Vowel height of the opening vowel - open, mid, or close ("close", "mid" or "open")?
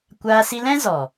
open